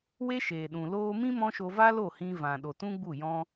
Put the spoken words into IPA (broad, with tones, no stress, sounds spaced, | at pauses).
w e˦ ʃ eː˨ ɗ ũ˨ l oː˧ m ĩ˦ m ɔ̃˦ ʃ o˧ v a˦ l o˦˨ h ĩ˧ v ã˨ ɗ o˨ t ũ˦ ɡ͡b u˦˨ j ɔ̃˦